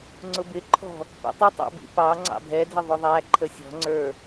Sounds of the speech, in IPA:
ŋ͡ǀʊbɪǃʰɔ̤ | pḭtˤɪtˤɑ̰bḭ pɑ ŋ͡ǀɑ̰bʱɛ dʱɪðˤʊðˤæ ǃʰəsʲɔ̤ŋ͡ǀə˞

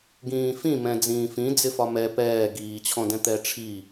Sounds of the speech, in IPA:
ɡĩːfĩmɛ̃ d͡zĩːfĩ d͡zɪfɒmɛ pɛː ɡiːt͡ɕʰɔ̃dɛ̃ t̪ɛʈ͡ʂʰi

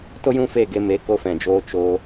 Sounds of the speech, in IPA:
to˦jũ˦fe˦˨ɡe˧ me˨˦ko˧fɛ̃˨d͡ʒoː˧ t͡ʃo˧

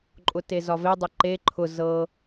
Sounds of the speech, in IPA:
ǃʼʊtezɒve dˤʊǃe ǃʰʊ zɤ

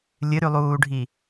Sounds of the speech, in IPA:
lʲɨɾʉlˠuːɖʱi

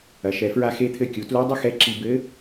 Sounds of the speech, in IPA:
ɐ˩˧ʃɛ˩˧fɹa˧ xe˧t̪ʰɘ˧ kʲu˩˧ tlu˧˥ dˤɘ˥xɛ˧˥ǁi˧ bɘ˧˥

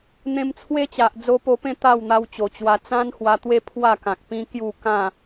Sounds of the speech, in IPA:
n̪ẽ˧mt͡sʰwe˦t͡ɕa˨ʔ d͡zo˧po˧pẽ˥˧ t̪a˥˧wn̪a˧wt͡ɕo˨˩t͡ɕwa˧ t͡sã˦nhwa˧t̪we˦ pʰwa˥˧kã˨k̚ pĩ˦kju˥˧ kã˥˧

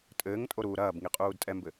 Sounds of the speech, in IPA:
tʼɘːŋtʼoɾuː ɾɐːbŋiqʼuːd tʼɛmbɘ

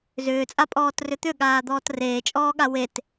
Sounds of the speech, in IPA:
zʏːt͡sʼapʼɔːtrʏ t̪ʏɠaːd̪ɔːt reːt͡ʃʼɔːɠa wet

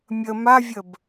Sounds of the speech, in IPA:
mʲə mavʲəb

